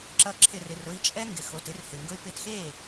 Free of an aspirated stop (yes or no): no